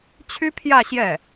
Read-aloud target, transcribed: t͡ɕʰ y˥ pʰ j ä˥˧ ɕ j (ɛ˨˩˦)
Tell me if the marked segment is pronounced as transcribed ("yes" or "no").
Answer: no